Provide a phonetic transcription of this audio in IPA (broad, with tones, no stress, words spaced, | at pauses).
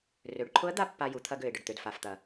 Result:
rø˩˧ɖǃʰʊ˧˥ə̯d̪a˧ pːa˧ju˩˧t̪ʰɐ˧ ɡø˩ɪ̯ɖə˩ɖt̪ø˩dfa˩f t̪ɐ˩